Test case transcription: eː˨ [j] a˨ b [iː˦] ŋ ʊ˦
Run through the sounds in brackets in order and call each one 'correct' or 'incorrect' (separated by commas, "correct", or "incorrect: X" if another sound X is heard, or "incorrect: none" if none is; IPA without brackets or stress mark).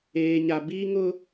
incorrect: ɲ, correct